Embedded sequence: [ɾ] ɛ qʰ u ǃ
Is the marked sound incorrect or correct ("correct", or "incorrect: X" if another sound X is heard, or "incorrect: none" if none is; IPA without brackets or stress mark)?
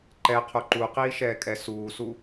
incorrect: ǃ